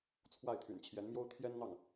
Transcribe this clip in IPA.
t͡sʰwa˥˩ɪ̯t̪ʰy̰˨˩n t͡ɕʰjɛ˧˥nmjo˥ʊ̯ t̪ʰjɛ˥nn̪ɑ˥˩ŋ

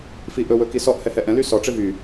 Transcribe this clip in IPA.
fiʔɵ wɵkisɔʔ hɛhɛʔɛ̃ lysɔ ʈ͡ʂevy

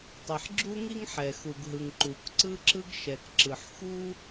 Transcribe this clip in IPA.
tˤi˩ħ ɡ͡ǁu˥ŋi˥ŋħɛ˩ xu˩ɡɦɯ˩ŋ ǃu˩k ǀɯ˥ǁɯ˥ɡ ʃɛ˩kǁɯ˩ħ xu˥

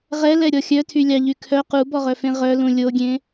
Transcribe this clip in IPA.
ʁɛlɛɾʲɔ xʲœtʰylʲɑʎy kʰœ qubɔʁœfẽ ʁœlũ lʲoɡʲẽ

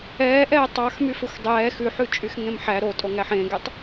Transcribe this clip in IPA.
ɛːʔɛː tˤɑx myfɵxʷdˤɛː xʉħʉ t͡ʃʼyxŋẽmħæ ɾotʼo ŋæħẽɡetˤ

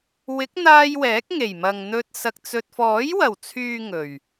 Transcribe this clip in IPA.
wɪ˨˥k̚n̪aː˧j wɛː˨˥k̚ŋe˨˩jmɐ˨ŋn̪ɵ˧t̚ sɐ˧k̚t͡sɵ˧t̚ fɔː˨˥jwɐ˨˩wt͡sʰyː˨ ŋɵ˨˩ɥ

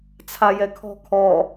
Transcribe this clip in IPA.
t͡sʰajɛkʰɔ̤ kʰɔ

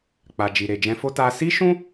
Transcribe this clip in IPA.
k͡pa˨ d͡ʒi˨ɾe˨d͡ʒɛ̃˧fo˦ ta˦ si˦ʃũ˦

